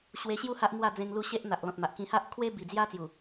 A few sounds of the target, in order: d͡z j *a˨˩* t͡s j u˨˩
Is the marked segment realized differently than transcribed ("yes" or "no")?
yes